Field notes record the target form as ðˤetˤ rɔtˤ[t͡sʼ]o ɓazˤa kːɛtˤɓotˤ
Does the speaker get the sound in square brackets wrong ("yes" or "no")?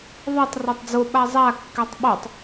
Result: yes